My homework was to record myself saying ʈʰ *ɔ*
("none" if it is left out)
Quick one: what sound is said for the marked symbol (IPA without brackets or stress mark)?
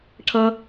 ʌ